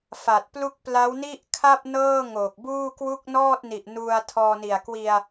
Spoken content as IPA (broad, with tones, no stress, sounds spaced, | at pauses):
f a˨˩ t̚ p l u˥˩ k̚ p l a˦˥ w n i˥˩ ʔ kʰ a˥˩ p̚ n ɤː˥˩ ŋ oː˨˩ k̚ b uː˥˩ k w u˥˩ k̚ n ɔː˥˩ t̚ n i˨˩ ʔ n u˧ a̯ tʰ ɔː˧ n i˨˩ a̯ k w i˧ a̯